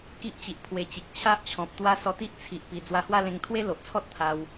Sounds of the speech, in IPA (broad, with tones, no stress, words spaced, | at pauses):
ki˦ʔt͡ɕi˨ʔ pʰwe˧t͡ɕi˨k̚ t͡ɕʰa˦ʔt͡ɕʰɔ̃˨p̚t̪wa˦ sɔ˧t̪i˦ʔt͡sʰi˨ʔpi˨˩ d͡zwa˧hwa˥˧lẽ˧ŋ t̪ʰwe˦lo˨ʔt͡sʰɔ˦t̚ t̪ʰa˧w